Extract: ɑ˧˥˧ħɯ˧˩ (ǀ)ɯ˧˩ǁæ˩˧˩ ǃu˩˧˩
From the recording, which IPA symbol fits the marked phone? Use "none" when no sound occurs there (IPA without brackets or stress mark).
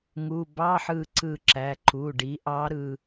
ǀ